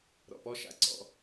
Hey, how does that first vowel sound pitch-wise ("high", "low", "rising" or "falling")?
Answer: low